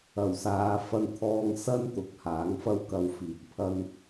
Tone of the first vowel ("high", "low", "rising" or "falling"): low